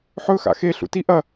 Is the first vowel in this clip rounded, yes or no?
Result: yes